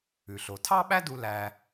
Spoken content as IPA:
ʉ˩ ɬ o˩ tʰ ɑ˥ ɓ æ˥ d u˧ l æ˧

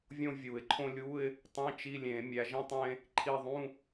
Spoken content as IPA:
vʲ õ˥ vʲ u˨˩˦ ɪ̯ ǃʰ õ˥ lʲ u˧˥˧ ɪ̯ | tˤ ĩ˧˥˧ t͡ʃ i˧˥˧ lʲ ẽ˨˩˦ mʲ æ˨˦ ʒ ĩ˥ tˤ ẽ˥ | ǃʰ i˦˨ ðˤ ũ˧˥˧

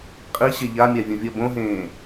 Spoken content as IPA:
qʼ i ɕ e ʎ a mʲ a vʲ ũ vʲ ʌ b õ ɦ ẽː

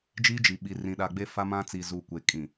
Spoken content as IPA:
d͡ʒ iː˦ d͡ʒ i˨ ɓ i˨ r ĩ˨ ɗ a˨ ɡ͡b e˦ f a˦ m ã˦ t͡s i˨ z uː˨ kʷ e˨ kʼ ĩ˨

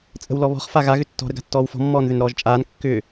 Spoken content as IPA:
t͡sʼ ə̤ w l ɔ β ɔ̤ χ f a ɣ a ɣ ʏ tː ɔ̤ ɾ ə ɡ a̤ tː ɔː w f ɔ̤ mː ɔː n ð ʏ n ɾ ɔː ʒ t͡ʃʼ aː n kː ʏː

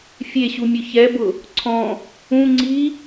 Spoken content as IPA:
fʲ e ɕ u mʲ ʊ ç ɛ b ʊ | ǀʰ ɔ̃ | ũ ŋ͡ǀ i

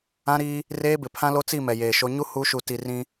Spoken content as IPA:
ã˦ ɾ iː˦ | r eː˦ b ɪ˨ pʰ ã˦ l o˦ t͡s i˦˨ m ɛ˨ j eː˨ ʃ o˦ ɲ u˦ h u˨˦ ʃ u˨ t i˨ r ĩ˦

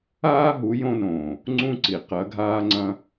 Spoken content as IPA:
aː˦ ɦ u˨˦ j õ˧ n õː˨ | ŋ͡ǀ ũ˦ ǀ i˨ q ɐ˨˦ ɡʱ aː˦ ŋ͡ǀ ɐ̃˦

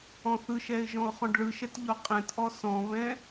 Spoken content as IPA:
ɔ̃ θ ɯ ʃ ɛ ɪ̯ ʒ ɔ̃ ʊ̯ χ ɔ̃ ɖ ɭ ɯ ʃ ɛ t ʎ ɔ qʼ ɛ̃ t ʔ ɔ s ɔ̃ β ɛ̃

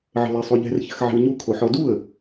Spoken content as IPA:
ʕ ə̤ l ɛ sˤ u ʎ ɛ̤ r ç ə̤ x ʕ ɛ̤ w ɲ u kʰ o ħ ɔ d u ə̯

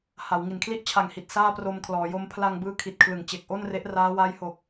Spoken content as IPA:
h a˩˦ w ŋ i˩˦ n kʰ l i˥˩ ʔ t͡ɕʰ a˨˩ ŋ h i˨˩ t̚ s aː˥˩ p r o˧ m kʰ l ɔː˩˦ j o˦˥ m pʰ l a˧ ŋ b ɯː˦˥ kʰ i˨˩ t̚ kʰ l ɯ˩˦ ŋ t͡ɕ e˨˩ k̚ ʔ o˥˩ n r e˦˥ ʔ r aː˦˥ w a˦˥ j h o˨˩ k̚

